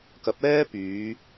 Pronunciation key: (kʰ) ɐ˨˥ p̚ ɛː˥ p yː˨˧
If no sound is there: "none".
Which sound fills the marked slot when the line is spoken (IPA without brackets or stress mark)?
k